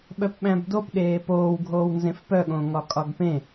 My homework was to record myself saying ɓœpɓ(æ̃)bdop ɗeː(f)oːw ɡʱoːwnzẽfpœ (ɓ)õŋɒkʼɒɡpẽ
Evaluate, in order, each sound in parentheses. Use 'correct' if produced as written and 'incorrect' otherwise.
correct, incorrect: p, incorrect: ɠ

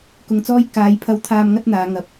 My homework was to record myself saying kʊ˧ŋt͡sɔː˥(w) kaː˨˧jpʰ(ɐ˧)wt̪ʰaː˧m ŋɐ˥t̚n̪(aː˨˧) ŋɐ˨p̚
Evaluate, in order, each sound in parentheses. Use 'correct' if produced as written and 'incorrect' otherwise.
incorrect: j, correct, correct

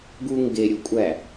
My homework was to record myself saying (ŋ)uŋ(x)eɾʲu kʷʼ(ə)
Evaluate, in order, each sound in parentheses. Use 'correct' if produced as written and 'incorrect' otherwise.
incorrect: ɡ, incorrect: ɡ, incorrect: æ

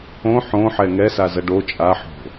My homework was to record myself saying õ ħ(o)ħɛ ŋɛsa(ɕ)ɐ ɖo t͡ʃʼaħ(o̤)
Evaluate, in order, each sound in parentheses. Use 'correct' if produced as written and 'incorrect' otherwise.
incorrect: õ, incorrect: z, correct

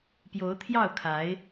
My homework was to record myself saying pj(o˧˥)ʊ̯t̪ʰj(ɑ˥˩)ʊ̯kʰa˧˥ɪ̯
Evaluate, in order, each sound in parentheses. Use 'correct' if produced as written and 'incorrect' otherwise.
correct, correct

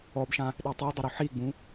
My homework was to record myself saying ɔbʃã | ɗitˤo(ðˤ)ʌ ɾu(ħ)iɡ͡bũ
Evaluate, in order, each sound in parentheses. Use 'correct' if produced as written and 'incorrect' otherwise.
incorrect: dˤ, correct

